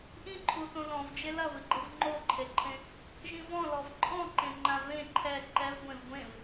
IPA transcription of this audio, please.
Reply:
ʔ ĩ ǃʰ u θ õ l ɔ̃ v d͡ʒ e l ɐ v ɨ ɡ͡ǃ ɨ v ŋ͡ǃ o ǃʰ e ǃʰ ẽ | ʒ ĩ v ɔ̃ l ɔ v ǃʼ ɔ̃ ǃ ẽ ŋ͡ǃ ã v ẽ ǃʰ ɛ ǃ ɛ v ɡʷ ẽ v ɡʷ ẽ v

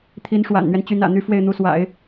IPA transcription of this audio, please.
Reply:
t̪ʰ i˧˥ n ʂ w a̰˨˩ n n̪ ɥ ɛ˦ n t͡ɕ y˧˥ n ä̰˨˩ n̪ y˧˥ f w e˥˩ ɪ̯ n̪ u˧˥ s w a̰˨˩˦ ɪ̯

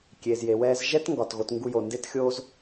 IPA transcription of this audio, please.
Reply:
kʲ eː˨ z j e˨ w ɛː˧ z ʒ ɛ˦ t ŋ ɡ ɒ˨ t ɣ o˧ t ŋ ɡ u˧ j o˨ n d e˦ t xʲ o˦ z

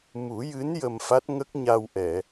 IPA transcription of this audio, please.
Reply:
m u˨˩˦ j ɨ˧˥ n j ə˧ m f a˦˥ t̚ ŋ ə˦˥ k̚ ɲ a˧ w ʔ ɛ˨˩˨

